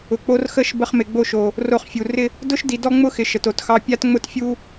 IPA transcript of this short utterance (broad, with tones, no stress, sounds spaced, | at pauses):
ʊ˨ k͡p o˧ r x ə˦˨ ʃ b ə˧ χ m ɪ˨ ɡ͡b o˧ ʃ o˨ | r o˧ χ fʲ u˨ r ɪ˦ | d ʊ˦ ʃ d i˨ d ɔ˦ ŋ͡m ʊ˦ x ɪ˨ ʃ ə˨ t o˨ t x ɑ˧ pʲ a˦ t ŋ͡m ʊ˦ t fʲ u˦